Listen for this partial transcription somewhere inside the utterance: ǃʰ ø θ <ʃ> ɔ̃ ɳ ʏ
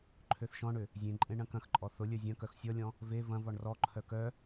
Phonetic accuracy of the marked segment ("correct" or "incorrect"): correct